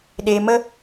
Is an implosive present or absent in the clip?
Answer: present